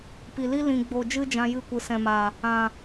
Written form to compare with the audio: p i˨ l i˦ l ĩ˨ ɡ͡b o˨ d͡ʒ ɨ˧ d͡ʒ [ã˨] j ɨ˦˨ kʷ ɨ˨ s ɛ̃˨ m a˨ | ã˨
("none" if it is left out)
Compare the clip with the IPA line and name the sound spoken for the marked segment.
ã˧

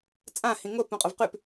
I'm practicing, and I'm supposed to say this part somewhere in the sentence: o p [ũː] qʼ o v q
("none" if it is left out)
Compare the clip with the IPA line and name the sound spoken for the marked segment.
ũ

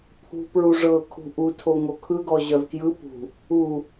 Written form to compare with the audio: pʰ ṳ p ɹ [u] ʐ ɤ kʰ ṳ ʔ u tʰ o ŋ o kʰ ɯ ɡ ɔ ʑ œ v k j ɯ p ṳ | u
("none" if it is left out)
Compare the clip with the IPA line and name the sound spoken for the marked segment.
u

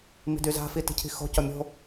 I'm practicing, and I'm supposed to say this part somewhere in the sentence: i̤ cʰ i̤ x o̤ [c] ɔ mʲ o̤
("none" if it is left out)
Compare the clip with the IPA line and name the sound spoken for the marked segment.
c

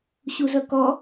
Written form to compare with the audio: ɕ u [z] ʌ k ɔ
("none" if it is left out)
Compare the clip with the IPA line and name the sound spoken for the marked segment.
z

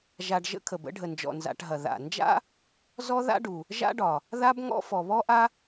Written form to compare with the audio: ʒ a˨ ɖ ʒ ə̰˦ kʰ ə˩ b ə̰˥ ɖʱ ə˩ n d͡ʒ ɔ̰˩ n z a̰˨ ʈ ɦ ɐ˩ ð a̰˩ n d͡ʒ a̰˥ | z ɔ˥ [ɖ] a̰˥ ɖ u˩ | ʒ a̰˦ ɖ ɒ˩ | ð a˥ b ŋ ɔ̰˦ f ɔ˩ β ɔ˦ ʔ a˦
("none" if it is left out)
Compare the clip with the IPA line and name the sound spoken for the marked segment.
ð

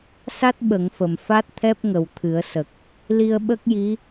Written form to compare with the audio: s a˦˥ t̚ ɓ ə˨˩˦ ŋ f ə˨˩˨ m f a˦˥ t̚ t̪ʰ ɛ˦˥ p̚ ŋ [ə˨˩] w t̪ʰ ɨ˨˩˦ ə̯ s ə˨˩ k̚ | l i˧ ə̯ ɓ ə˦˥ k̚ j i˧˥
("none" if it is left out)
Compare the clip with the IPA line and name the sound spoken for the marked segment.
ə˨˩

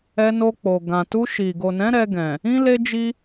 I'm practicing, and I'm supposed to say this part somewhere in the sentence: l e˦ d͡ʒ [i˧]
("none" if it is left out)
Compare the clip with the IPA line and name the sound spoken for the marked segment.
i˦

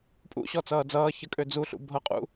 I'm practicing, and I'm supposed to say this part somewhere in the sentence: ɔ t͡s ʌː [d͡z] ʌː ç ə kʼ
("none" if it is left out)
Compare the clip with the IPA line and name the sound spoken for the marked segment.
d͡z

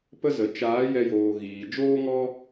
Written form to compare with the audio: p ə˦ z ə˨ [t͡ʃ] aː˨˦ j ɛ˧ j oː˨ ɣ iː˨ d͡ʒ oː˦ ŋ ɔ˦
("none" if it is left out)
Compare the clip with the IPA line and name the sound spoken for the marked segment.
t͡ʃ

